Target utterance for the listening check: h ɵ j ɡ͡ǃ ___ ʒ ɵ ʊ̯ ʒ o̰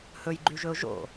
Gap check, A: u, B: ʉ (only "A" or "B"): B